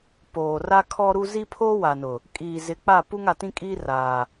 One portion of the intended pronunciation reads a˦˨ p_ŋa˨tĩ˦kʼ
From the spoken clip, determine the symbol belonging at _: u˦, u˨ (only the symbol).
u˦